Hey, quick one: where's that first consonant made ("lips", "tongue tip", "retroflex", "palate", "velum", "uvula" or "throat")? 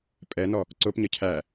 lips